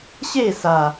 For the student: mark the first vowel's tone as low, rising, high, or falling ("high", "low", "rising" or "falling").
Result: falling